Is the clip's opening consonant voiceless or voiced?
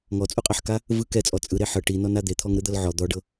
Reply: voiced